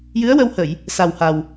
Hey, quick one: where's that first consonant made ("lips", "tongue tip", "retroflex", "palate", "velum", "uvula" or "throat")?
palate